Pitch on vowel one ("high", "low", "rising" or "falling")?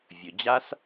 low